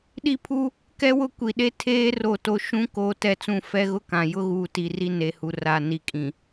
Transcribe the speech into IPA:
ɗ i˦ pʰ u˦ | k ɛ˦ w ʊ˦ kʷ i˨ ɗ e˦ tʰ eː˦ r o˦˨ t o˦ ʃ ũ˦ k oː˦ t ɛ˦ t͡s ũ˦˨ f ɛ˦ ɣ ʊ˦ k ã˨ j ʊ˦ ɣ uː˨ t i˨ r i˦ n e˨ h u˨ r a˨ n i˨ kʼ ĩ˨

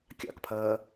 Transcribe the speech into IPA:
kʲ ɑ̰ k pʰ ɜː

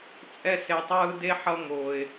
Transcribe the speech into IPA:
t͡sʼ ɛ˧ s e˨ tˤ ɯː˧ d e˦ ħ ʌ˧ ŋ oː˨ ɪ̯

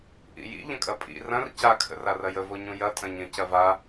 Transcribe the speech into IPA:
ʔ ḭ j ḭ ʎ ə̃ kʼ ɐ pʼ ḭ r ɐ̃ r c a kʰ ə̰ r a r ɐ j ə v o ɲ ũ j ɐ tʼ ɐ̃ ɲ ə̃ c ɐ v a

